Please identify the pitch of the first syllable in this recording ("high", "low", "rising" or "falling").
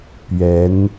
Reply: rising